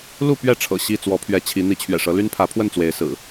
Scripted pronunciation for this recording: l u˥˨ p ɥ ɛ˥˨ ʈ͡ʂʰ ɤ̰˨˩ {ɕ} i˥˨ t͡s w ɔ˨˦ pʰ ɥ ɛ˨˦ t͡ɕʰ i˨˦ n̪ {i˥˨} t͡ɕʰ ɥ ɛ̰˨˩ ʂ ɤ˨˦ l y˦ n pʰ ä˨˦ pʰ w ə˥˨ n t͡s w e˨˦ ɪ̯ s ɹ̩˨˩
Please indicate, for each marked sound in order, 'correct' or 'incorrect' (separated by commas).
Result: correct, incorrect